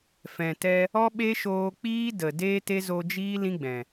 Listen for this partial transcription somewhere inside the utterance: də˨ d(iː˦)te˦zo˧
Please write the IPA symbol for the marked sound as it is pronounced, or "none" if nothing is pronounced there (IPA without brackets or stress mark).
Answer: eː˦